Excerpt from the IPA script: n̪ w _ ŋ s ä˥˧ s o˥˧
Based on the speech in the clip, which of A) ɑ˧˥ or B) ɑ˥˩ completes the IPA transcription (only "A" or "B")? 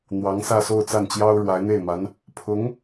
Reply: A